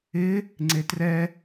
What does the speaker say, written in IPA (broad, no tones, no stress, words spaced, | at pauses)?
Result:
ɪ | ŋ͡ǀetrɛ